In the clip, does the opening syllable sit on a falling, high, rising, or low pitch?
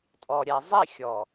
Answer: low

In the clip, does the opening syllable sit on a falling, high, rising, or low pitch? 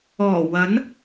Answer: low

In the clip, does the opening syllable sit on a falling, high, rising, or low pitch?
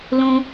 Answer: high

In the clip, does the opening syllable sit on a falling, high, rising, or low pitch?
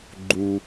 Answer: low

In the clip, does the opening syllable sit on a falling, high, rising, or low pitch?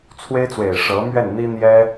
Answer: high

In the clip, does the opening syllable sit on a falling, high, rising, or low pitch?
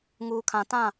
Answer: low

